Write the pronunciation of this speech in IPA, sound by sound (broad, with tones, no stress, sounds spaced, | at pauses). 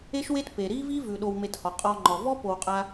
e˦ ʃ w e˦ t p e˨ ɾ i˦ v i˦ v ʉ˨ ɗ o˧ w m e˧ t h ɔ˨ qʼ ɔ˧ ŋ͡ǃ ɔ˨ v ɔ˦ p o˧ w qʼ a˦